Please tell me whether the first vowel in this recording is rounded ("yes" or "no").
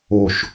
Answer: yes